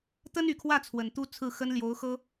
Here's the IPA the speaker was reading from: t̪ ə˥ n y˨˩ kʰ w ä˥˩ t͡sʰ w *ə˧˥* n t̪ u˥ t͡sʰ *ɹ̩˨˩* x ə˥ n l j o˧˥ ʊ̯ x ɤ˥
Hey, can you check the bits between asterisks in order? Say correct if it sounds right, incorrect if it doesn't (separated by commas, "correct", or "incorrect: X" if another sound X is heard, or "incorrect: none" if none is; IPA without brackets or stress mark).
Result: incorrect: ə˨˩, incorrect: ɹ̩˥˩